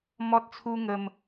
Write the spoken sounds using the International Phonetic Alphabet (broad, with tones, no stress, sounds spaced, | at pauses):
m ɔ˦ t̚ t͡sʰ u˦ ŋ ə˧ m